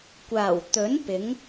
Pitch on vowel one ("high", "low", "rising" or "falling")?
low